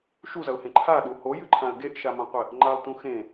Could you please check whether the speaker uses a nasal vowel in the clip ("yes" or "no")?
yes